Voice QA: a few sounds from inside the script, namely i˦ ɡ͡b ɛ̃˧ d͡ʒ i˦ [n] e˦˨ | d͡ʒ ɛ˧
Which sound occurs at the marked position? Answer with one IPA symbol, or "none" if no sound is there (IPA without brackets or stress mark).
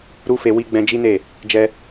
n